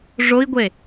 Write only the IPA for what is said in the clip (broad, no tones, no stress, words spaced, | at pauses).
ʐoi̯ɡʷe